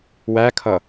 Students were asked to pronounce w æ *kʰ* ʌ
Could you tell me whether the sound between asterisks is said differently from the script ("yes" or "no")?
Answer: no